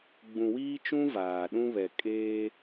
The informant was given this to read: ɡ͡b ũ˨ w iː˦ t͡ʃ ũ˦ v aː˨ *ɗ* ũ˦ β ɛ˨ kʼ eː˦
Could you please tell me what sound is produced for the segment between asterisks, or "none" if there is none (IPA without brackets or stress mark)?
ɗ